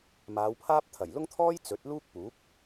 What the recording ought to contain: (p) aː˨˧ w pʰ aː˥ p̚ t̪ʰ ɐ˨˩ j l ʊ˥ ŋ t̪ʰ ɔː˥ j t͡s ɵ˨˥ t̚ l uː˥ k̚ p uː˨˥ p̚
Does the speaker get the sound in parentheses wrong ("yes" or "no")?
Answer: yes